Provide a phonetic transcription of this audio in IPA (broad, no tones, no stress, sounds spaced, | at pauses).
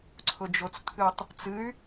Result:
ǀʰ ʊ d͡ʒ o t͡s t̪ʰ ɨ tˤ | t͡s ɨ y̯